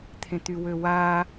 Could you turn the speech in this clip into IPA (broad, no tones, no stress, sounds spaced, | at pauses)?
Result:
t̪ʰ ẽ t̪ y w ø w a